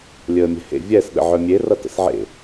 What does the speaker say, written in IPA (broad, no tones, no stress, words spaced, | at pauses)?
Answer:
lʲəːmʲɛ̤hḛ vʲɛs ɗə̰ʕœmʲe rʌtə̰sʕḛ